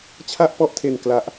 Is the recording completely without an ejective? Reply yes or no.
yes